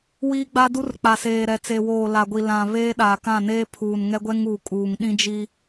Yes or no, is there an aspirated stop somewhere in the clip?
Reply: yes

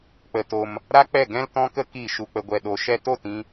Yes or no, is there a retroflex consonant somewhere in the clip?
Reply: no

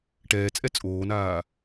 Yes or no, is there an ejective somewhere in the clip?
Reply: yes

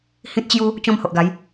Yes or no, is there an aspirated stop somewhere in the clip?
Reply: no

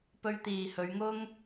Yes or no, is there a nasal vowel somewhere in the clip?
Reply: no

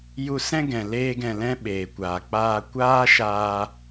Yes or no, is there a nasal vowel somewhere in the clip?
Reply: yes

